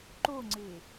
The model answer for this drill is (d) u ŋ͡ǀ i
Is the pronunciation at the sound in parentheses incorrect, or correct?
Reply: incorrect: ǃ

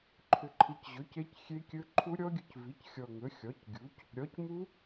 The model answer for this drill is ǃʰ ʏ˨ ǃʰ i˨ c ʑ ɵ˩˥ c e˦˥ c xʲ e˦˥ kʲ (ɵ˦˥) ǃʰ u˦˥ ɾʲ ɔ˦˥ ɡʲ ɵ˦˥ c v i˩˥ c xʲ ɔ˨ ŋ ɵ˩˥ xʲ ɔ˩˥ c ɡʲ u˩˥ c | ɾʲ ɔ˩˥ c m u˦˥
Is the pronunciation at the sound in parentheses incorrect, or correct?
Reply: correct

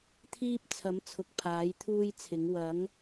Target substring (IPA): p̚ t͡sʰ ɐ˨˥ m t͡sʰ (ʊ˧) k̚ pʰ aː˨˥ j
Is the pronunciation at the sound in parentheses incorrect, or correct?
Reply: incorrect: ʊ˨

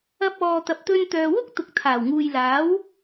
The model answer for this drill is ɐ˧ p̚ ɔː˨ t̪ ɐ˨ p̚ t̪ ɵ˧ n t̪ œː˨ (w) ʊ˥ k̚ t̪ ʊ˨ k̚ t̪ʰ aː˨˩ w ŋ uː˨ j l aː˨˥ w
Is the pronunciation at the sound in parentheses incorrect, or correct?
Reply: correct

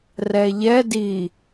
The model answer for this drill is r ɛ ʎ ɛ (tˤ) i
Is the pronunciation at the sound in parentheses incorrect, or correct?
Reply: incorrect: d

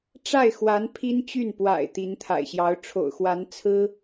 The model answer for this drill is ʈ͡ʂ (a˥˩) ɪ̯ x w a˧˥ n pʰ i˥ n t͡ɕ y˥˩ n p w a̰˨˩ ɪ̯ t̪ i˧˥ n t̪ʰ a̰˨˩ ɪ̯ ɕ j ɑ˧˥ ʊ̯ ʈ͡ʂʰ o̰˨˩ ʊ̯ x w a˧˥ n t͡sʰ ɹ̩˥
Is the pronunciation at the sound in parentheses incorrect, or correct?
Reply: correct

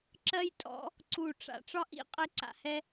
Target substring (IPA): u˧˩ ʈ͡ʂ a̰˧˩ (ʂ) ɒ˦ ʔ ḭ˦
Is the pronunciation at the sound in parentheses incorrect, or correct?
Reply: incorrect: ʈ͡ʂ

